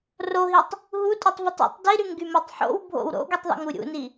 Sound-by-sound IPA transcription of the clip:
r o ɦ i tˤ | ɦ u tʼ u tˤ v o tˤ o̰ tˤ d i ɾ y ŋ ɡ y m o tˤ ħ o̰ w bʱ o̰ w ɾ o̰ ɡ y tˤ ðˤ ṵ ŋ u ɾʲ ṵ n i

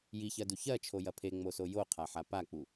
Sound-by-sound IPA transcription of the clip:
j i ç ɜ d u ç ɜ t͡ʃʰ o j ɐ pʰ e ŋ͡m o s o j o qʰ a ħ a p a k͡p u

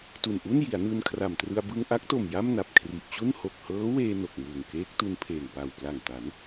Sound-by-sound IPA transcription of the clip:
t u˨˩ n ʔ u˥˩ n j i˩˦ a̯ n ɯː˧ n kʰ r a˨˩ m t r ɯ˧ a̯ b ɯ˧ ŋ ʔ a˦˥ k̚ t o˨˩ m j a˥˩ m n a˨˩ p̚ kʰ r i˨˩ ʔ t͡ɕ u˥˩ n h o˨˩ k̚ h ɤː˦˥ w eː˧ n o˨˩ k̚ m uː˨˩ ŋ k eː˦˥ k̚ t u˧ n pʰ eː˨˩ ŋ p a˨˩ w p l a˨˩ ŋ t a˩˦ n

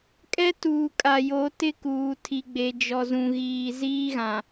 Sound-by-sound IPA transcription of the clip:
kʼ ɛ˦ t uː˨ kʼ a˨ j o˨˦ t ɪ˦ k uː˨ tʰ i˨ ɡ͡b e˨ d͡ʒ ɔ˨ z ũ˨ ɣ iː˨ z iː˦ ɣ ã˨

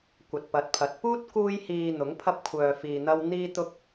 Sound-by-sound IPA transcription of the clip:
kʷ ɐ˨ t̚ p ɐ˨˥ t̚ pʰ ɐ˨˥ t̚ p uː˥ t̚ k uː˥ j h iː˧ n̪ ʊ˨˥ ŋ pʰ ɐ˥ p̚ kʷʰ œː˧ f iː˧ n̪ ɐ˥ w n̪ iː˥ t̪ ʊ˥ k̚

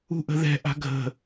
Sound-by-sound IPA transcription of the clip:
ṳ ʔ ə̤ ð ɛ̤ ʔ a̤ ɡʱ ə̤

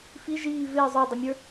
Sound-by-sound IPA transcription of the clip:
f i ʒ iː v ɪː zˤ ə˞ dˤ ɪ mʲ ə˞

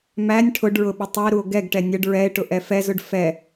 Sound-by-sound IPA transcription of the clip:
m æ nʲ ʈʰ ʊ ɖ ɹ ʊ ɓ ɪ tˤ ʊ e̯ ɾ u o̯ ɡ ɛ ɡ ʈ ɛ nʲ ə ɖ ɹ ɛ e̯ ʈ ʊ ʔ ɛ f ɛ z ʊ ɖ f ɛ

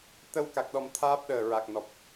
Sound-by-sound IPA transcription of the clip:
t̪ ə˧ w k a˨˩ k̚ ɗ ɔ˨˩ m t̪ʰ aː˦˥ p̚ ɗ əː˨˩ ɹ a˨˩ k̚ n ɔ˨˩ p̚

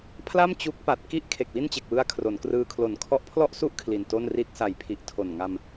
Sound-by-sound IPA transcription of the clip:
pʰ l a˥˩ m t͡ɕ u˦˥ k̚ p a˨˩ t̚ k i˥˩ ʔ kʰ e˨˩ k̚ w i˥˩ n t͡ɕ e˨˩ k̚ w ɯ˦˥ a̯ kʰ r o˩˦ n k r ɯː˧ kʰ l o˨˩ n kʰ ɔ˦˥ ʔ pʰ l ɔ˥˩ ʔ s u˥˩ ʔ kʰ l i˨˩ n t o˥˩ n r i˥˩ t̚ s a˨˩ j pʰ i˨˩ ʔ tʰ o˨˩ n ŋ a˧ m

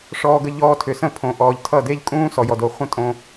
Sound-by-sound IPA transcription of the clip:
ʂ ɔː˧ ɡ ə˧ ʎ ɔː˧ tʰ ʏ˨ s ə̃˦˨ pʰ õ˨ ʔ ɔː˨ ʎ tʰ ʌ˦˨ d e˦ ʎ kʼ ũː˦ s ɔ˨ j ɔ˨ d o˨ χʷ ə̃˦ tʼ õ˧

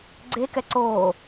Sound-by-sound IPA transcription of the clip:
ɡ͡ǀ e k ɛ ǀ oː

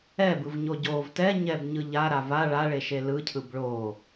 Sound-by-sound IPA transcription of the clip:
ɛ b ɯ v ɲ o ɟ o v t ɛ ɲ ɛ b ɲ ɯ ʎ a ɾ a v a ɭ a ɭ e ʃ e l ɯ cʰ ɯ b ɭ o

